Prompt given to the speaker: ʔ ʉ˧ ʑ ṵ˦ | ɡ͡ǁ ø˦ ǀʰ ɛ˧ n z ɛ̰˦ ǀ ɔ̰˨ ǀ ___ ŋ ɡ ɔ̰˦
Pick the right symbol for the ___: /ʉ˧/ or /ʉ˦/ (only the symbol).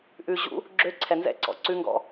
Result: ʉ˦